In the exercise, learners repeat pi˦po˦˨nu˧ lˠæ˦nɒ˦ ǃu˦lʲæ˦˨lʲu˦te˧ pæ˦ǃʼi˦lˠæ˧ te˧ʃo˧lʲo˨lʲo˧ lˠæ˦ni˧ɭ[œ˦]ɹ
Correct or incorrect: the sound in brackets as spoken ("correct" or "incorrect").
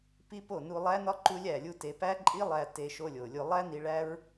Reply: incorrect